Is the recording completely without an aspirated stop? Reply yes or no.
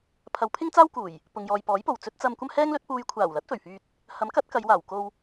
no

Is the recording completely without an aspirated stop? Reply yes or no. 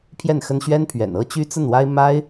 no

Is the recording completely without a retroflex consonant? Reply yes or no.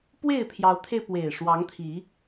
no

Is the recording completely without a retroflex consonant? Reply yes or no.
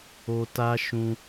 yes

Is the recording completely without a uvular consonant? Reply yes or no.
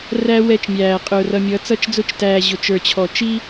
no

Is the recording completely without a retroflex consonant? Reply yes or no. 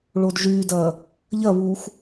no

